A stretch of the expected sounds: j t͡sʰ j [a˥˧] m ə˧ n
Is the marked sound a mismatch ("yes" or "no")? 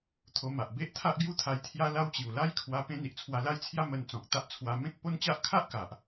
yes